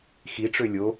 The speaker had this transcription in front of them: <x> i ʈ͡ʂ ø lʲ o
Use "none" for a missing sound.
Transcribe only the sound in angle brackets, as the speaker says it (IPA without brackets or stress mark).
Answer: x